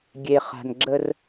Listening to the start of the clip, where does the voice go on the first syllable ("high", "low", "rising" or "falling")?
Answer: low